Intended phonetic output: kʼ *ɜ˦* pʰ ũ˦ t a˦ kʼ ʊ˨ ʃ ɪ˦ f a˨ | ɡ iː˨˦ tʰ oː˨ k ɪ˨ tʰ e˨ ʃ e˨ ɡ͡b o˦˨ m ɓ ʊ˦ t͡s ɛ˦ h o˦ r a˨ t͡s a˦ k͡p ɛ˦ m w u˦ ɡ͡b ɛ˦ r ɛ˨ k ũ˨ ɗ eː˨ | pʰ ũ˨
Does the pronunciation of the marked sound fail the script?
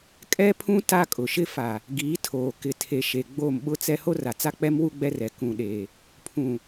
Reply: yes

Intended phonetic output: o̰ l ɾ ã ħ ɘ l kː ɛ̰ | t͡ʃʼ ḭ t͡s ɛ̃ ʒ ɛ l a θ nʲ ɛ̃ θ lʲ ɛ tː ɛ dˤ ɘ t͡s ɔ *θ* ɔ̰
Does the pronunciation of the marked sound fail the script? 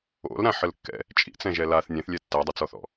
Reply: no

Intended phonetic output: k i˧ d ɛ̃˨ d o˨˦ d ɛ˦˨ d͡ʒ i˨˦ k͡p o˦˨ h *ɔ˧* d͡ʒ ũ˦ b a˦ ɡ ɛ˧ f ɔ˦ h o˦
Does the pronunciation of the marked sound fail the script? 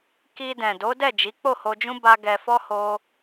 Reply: yes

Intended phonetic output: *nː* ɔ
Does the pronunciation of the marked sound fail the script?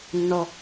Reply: no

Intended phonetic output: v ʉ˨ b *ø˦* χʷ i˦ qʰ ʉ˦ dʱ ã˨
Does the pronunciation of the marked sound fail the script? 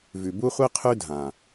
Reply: yes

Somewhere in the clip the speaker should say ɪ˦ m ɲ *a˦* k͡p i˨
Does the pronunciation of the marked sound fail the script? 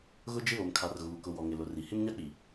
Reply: no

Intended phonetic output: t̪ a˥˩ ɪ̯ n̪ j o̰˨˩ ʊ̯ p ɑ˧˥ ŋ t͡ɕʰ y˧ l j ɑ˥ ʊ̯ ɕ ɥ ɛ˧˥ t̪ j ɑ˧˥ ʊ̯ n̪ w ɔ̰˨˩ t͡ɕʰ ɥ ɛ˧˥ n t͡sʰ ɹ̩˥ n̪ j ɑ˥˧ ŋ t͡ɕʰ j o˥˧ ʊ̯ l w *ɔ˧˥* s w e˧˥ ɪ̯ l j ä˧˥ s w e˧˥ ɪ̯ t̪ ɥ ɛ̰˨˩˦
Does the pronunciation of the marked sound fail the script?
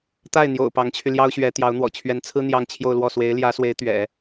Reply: yes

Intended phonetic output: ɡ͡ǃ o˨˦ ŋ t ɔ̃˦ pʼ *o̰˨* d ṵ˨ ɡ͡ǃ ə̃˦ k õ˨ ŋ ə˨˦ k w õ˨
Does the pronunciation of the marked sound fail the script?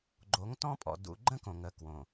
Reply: yes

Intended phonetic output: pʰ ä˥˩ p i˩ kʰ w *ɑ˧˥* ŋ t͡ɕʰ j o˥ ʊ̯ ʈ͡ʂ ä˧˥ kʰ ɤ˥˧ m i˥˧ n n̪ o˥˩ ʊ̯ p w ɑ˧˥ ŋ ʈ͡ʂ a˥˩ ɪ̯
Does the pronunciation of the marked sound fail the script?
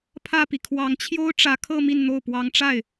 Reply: no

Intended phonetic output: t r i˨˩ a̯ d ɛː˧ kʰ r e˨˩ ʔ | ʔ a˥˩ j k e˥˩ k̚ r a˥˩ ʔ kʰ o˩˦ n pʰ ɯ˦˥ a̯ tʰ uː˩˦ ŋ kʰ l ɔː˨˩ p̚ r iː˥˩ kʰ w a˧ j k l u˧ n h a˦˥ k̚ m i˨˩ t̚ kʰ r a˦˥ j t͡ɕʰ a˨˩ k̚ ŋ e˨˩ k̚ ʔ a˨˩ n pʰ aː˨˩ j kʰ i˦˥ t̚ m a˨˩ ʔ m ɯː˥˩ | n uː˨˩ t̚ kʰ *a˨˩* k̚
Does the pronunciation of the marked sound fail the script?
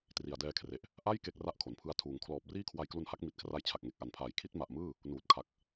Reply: no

